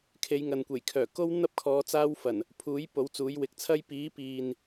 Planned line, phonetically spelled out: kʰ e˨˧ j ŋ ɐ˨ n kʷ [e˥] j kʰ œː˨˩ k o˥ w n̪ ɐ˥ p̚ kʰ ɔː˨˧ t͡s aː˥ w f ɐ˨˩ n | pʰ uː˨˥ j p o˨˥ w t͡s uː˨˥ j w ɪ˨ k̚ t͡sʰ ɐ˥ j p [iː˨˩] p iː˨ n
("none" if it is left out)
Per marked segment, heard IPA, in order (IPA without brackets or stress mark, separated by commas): e˨˩, iː˨˥